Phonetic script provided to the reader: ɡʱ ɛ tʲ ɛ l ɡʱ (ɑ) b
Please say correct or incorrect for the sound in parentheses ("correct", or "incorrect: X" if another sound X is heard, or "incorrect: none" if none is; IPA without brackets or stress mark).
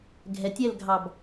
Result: correct